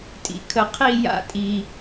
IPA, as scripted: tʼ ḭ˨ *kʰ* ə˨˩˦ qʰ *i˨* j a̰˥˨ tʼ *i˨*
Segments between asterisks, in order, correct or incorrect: correct, incorrect: i˥˨, correct

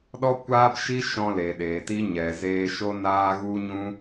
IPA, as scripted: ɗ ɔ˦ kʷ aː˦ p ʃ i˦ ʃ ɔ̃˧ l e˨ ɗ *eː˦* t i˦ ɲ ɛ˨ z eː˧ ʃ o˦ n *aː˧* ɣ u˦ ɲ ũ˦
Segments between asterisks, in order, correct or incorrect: incorrect: eː˨, incorrect: aː˦

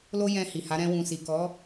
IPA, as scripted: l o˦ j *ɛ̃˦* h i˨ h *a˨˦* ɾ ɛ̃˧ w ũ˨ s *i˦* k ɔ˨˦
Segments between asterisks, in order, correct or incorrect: incorrect: ɛ̃˧, correct, incorrect: i˨

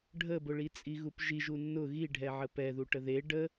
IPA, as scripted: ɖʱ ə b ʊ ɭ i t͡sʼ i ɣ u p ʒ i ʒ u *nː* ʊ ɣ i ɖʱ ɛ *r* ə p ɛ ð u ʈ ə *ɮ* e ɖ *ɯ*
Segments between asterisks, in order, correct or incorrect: correct, incorrect: ʕ, incorrect: ð, incorrect: ə

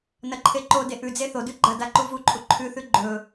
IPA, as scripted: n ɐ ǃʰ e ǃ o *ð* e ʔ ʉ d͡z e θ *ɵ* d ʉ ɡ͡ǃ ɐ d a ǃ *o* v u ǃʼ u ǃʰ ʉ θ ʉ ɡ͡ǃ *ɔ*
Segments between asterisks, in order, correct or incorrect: incorrect: d, incorrect: o, incorrect: u, incorrect: ɵ

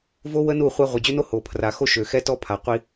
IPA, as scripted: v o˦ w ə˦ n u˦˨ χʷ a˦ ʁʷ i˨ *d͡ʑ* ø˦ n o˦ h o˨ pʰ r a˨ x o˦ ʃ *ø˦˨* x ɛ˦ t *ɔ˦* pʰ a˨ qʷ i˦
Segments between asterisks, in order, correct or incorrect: correct, incorrect: ø˨, correct

